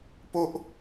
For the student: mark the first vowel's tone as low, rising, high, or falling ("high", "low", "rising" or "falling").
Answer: high